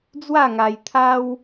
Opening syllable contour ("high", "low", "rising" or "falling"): falling